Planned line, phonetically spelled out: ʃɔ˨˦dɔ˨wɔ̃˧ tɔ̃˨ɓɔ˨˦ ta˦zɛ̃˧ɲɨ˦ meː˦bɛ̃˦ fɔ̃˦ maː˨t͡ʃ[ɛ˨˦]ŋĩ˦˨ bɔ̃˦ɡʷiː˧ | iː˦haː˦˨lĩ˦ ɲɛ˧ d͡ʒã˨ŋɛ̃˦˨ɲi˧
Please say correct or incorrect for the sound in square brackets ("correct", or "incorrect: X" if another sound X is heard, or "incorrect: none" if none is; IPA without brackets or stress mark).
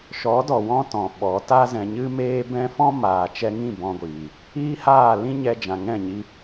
incorrect: ɛ˧